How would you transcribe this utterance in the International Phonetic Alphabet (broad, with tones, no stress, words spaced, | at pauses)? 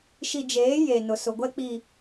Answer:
ʃi˨d͡ʒeː˨˦ je˨ nʊ˨sʊ˨ɡʷɛ˦ k͡pi˨